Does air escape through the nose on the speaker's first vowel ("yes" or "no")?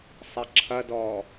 no